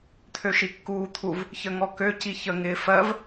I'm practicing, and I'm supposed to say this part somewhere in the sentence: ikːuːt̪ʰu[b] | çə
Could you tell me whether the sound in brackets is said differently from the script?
yes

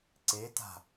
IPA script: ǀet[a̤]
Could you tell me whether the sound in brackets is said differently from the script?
no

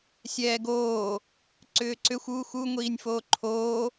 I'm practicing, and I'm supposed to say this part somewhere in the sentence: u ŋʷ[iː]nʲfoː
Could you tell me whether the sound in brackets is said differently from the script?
no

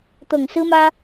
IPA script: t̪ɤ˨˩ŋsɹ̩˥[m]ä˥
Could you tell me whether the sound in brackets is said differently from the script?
no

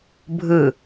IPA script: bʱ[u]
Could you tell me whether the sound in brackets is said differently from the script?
yes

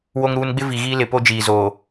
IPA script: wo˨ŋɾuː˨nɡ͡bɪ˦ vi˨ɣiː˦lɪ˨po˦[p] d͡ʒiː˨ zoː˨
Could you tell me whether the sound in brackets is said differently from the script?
yes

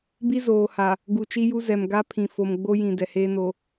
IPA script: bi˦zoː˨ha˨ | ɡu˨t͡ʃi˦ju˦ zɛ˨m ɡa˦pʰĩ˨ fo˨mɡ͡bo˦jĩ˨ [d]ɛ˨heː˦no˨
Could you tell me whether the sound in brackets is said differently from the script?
no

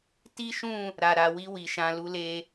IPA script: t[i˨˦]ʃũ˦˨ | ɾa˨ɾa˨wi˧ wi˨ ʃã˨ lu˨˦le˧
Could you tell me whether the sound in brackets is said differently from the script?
yes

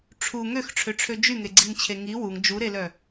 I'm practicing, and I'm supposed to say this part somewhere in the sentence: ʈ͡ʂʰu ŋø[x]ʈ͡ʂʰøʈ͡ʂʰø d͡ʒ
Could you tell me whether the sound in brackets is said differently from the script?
no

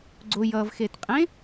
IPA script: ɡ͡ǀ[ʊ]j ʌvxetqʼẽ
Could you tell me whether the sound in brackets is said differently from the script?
no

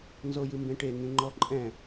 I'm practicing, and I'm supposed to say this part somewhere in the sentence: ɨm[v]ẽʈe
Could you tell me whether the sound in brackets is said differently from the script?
yes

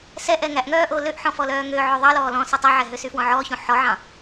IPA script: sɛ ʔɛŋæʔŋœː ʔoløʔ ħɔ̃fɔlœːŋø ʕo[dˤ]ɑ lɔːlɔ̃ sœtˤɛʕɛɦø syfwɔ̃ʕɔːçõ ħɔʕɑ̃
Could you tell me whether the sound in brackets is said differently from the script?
yes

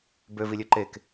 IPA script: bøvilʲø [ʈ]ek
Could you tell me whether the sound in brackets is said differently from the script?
yes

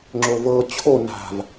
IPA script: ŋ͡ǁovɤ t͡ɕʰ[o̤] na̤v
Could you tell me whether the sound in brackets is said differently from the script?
yes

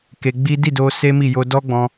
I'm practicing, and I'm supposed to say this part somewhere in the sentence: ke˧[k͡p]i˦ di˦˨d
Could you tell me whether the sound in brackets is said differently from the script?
yes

